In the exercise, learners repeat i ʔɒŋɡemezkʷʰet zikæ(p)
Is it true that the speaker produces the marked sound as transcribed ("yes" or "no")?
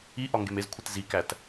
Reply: no